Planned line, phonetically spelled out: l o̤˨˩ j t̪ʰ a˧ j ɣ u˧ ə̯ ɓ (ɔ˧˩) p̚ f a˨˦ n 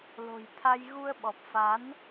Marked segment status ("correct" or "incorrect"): incorrect